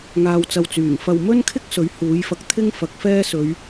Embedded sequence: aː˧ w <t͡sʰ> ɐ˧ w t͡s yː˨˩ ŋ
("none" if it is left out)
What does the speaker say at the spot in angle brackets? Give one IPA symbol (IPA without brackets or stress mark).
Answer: t͡s